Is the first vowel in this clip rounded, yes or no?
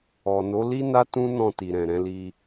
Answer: yes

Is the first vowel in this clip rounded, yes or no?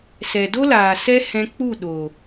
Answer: no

